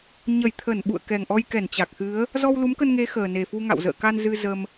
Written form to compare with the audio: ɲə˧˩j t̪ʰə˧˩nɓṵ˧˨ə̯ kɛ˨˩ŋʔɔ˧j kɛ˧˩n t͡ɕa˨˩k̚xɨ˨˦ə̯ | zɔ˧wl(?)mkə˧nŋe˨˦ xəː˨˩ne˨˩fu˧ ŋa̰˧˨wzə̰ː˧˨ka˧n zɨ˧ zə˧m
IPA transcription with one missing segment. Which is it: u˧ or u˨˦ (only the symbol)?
u˨˦